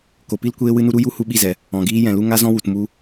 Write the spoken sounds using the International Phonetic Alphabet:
k o˨ p i˦ l kʷ eː˦ w ɨ˦ n u˦ ɾ u˦ j u˦ h u˧ ɓ i˦˨ z ɛ˨ | ɔ̃˨ ɡ iː˧ j ɛ̃˨ l u˧ ŋ a˦ z ɔ̃˦ w u˨ t m u˧

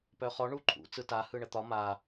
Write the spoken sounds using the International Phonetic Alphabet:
p œ χ ɔ ɳ u ǃʰ ṵ t͡s ɯ t a h ɯ ɳ ə t̪ ɒ m a

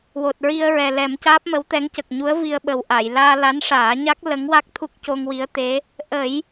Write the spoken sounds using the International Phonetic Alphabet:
w o˨˩ t̚ ɹ i˧ ə̯ ɹ ɛ˨˩ l ɛ˨˩˦ m c aː˦˥ p̚ m ə˧˥ w t̪ ɛ˧˥ ŋ c ə˨˩ k̚ ɲ u˧˥ ə̯ v i˧ ə̯ ɓ ə˨˩ w ʔ a˨˩˨ j l aː˧ l a˧˥ n ʂ aː˨˩˦ ɲ a˦˥ k̚ l ə˧˥ ŋ w a˦˥ k̚ t̪ʰ u˦˥ k̚ c o˧ ŋ w i˧˥ ə̯ t̪ e˧˥ | ʔ ə˨˩˦ j

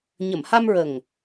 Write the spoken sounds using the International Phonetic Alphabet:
ɲ ə˨˩˨ m h a˧ m ɹ ə˨˩ ŋ

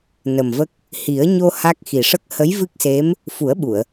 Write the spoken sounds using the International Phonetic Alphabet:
n ə˨˩ m v ə˦˥ k̚ | h i˨˩˦ ə̯ ɲ o˧ h a˦˥ k̚ x i˨˩ ʂ ə˦˥ k̚ h ə˧˥ j v ɨ˦˥ k̚ s e˧˥ m | f u˨˩˦ ə̯ ɓ u˨˩˨ ə̯

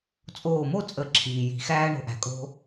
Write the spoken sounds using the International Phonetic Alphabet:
t͡sʼ oː˧˩ m o˥˨ t͡sʼ ə˨˩˦ ǁʰ iː˩ j i̤˨˩˦ x æː˦ ɳ o̤˧˩ ʔ æ̤˩ kʼ o̤˦

